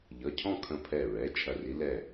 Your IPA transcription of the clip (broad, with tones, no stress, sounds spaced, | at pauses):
ʎ ʌ˩˧˩ cʰ ɔ̃˥˨ kʰ ə̃˧˩ pʰ ɛ˧˩ ɹ ɛ˩˧˩ t͡ʃʰ ɐ˧˩ r i˧˥ l ɛ˥˨